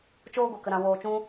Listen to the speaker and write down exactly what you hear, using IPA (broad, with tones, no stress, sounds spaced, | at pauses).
t͡ʃ oː˦ ɡʷ e˨ k ə˨ ɾ ã˨ w oː˨ t͡ʃ ũ˧